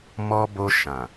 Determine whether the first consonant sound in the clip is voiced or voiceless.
voiced